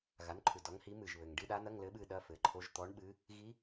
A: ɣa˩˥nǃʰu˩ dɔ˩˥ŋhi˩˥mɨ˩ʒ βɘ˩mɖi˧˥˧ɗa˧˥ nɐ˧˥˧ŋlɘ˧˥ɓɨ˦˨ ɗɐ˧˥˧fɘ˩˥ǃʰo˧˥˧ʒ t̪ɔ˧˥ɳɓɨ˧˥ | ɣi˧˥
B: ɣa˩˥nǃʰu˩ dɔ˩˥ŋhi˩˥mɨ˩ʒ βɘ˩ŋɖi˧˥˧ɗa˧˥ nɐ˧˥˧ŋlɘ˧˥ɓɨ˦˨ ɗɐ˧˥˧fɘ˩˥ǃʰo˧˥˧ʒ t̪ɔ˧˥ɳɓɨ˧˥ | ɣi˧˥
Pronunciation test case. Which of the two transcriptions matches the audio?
B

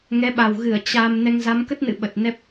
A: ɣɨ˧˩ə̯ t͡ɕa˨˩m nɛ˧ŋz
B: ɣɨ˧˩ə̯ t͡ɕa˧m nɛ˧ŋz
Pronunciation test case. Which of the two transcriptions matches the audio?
B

